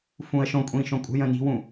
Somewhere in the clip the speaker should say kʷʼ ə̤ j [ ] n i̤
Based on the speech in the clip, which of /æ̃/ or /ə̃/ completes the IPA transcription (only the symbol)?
ə̃